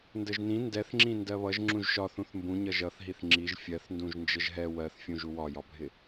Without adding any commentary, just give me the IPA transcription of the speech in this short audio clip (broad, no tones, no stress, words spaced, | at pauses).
ndəʒnĩ ndɛθŋ͡ǁĩ ndɜβʌʒ ŋ͡ǁũʒʃɒ θũθmbũ ɲʌʒʌθɦiθ ŋ͡ǁiʒ fʲɜθ ndũʒnd͡ʒəʒɦɛ wɜθfʲũʒ uwɒjɒbʱɪ